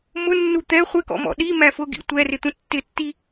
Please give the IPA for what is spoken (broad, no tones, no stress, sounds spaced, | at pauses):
m ʊ nː u t̪ ɛ χʷ ɪ k ɔ̰ m ɔ̰ ɗ i m æ f ʊ ɡ ḭ tʷ ɛ r ɪ t̪ ũ tː ɪ tː i